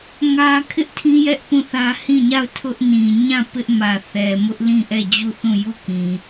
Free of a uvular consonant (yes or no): yes